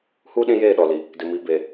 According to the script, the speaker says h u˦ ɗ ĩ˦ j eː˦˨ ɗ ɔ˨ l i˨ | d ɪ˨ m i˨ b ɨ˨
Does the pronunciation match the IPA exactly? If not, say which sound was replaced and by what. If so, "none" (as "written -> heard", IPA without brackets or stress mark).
ɨ˨ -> e˨